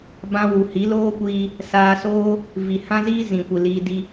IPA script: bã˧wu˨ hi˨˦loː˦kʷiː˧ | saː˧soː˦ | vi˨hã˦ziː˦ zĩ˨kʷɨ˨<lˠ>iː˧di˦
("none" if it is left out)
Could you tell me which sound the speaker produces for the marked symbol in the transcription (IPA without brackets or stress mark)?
l